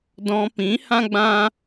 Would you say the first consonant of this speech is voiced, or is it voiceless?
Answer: voiced